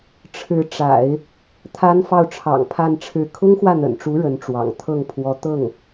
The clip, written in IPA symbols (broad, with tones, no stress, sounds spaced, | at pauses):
ʈ͡ʂʰ ɻ̩˧˥ ʈ͡ʂ a̰˨˩˦ ɪ̯ | t̪ʰ a˥ n f ɑ˥˩ ʊ̯ ʈ͡ʂʰ ɑ̰˨˩ ŋ pʰ a˥˧ n ʈ͡ʂʰ ɻ̩˥˩ kʰ ʊ˥ ŋ x w ä˥˩ n̪ ə̰˨˩ n ʈ͡ʂ u˧˥ ɻ ə˧˥ n ʈ͡ʂ w ɑ̰˨˩ ŋ t̪ʰ ɤ˥˩ ŋ pʰ w ɔ˧˥ t̪ ɤ˥˩ ŋ